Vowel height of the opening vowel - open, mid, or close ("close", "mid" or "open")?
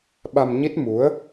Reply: open